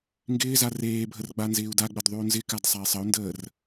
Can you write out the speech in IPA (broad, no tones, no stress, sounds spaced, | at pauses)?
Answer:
ŋ ɡ ɪː z a r eː bʱ ə r ɡ͡b a n z ɪː u̯ d a ɡ͡b ə d ðˤ ʉ u̯ n z ɪ k a d sˤ a i̯ sˤ ə u̯ n d əː r